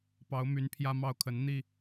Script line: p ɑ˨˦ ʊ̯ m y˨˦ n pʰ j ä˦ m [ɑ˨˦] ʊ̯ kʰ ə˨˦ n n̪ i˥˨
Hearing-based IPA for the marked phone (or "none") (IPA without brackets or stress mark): ɑ˥˨